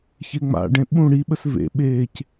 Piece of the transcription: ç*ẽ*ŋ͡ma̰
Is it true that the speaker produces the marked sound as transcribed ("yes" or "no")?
no